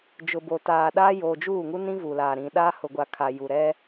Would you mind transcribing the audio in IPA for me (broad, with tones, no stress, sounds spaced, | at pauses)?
d͡ʒ ʊ˨ b o˨ t aː˨ ɗ aː˦ j oː˨ d͡ʒ uː˦˨ ŋ u˦ n ĩ˦ v uː˨ l aː˨ ɾ ĩ˨ ɗ aː˦ h ʊ˨ ɡʷ a˨ kʰ a˨ j u˨ ɾ ɛ˦